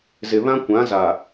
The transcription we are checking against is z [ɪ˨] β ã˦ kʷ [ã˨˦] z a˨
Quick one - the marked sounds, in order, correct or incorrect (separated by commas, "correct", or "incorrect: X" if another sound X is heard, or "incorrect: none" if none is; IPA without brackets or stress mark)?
correct, correct